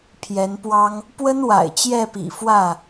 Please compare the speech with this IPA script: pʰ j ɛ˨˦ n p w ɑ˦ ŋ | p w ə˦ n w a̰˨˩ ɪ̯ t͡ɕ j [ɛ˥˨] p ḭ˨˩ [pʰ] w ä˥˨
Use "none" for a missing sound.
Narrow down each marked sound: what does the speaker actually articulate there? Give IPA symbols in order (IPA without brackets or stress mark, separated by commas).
ɛ˥˨, f